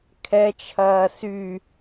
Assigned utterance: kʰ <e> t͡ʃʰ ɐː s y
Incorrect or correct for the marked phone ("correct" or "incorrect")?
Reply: incorrect